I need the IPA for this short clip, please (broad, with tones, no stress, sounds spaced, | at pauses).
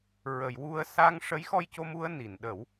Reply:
ɹ ə˨˩˨ j w u˧ ə̯ s a˧ ŋ ʂ ə˧˥ j x ɔ˧ j c o˧ m u˧ ə̯ n i˨˩˨ n ɗ ə˨˩˦ w